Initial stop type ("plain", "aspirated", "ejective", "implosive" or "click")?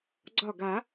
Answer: click